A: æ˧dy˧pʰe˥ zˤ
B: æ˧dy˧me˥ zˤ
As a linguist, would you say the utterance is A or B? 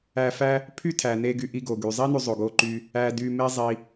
B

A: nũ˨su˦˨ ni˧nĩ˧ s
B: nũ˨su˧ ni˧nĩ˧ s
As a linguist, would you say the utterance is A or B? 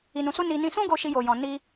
B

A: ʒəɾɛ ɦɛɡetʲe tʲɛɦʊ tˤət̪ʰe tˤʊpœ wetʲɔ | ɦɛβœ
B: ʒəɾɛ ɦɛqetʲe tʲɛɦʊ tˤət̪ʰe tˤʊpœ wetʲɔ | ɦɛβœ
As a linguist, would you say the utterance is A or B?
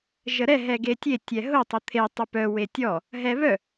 A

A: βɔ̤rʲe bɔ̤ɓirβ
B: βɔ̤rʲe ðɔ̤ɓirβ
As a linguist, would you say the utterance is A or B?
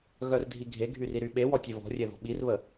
B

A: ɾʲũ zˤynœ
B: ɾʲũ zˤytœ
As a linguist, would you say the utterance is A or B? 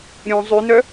A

